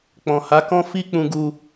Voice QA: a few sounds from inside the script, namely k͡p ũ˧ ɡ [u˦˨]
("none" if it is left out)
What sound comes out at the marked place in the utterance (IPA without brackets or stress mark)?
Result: u˧